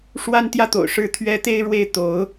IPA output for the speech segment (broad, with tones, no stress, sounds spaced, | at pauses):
ʂ w a˥ n t̪ j ä˥˩ t̪ o̰˨˩ ʊ̯ ʂ ɻ̩˥ t̪ʰ ɥ ɛ˥ t̪ e˥ ɪ̯ ɻ w e˥˩ ɪ̯ t̪ o˧˥ ʊ̯